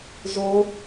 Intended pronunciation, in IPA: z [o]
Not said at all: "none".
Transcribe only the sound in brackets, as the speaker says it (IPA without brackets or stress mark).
o